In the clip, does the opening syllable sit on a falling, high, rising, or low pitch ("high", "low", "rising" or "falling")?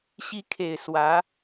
rising